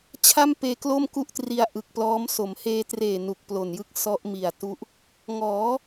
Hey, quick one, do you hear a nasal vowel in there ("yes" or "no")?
no